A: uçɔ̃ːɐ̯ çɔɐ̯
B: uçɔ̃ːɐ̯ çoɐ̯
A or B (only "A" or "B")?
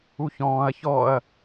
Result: A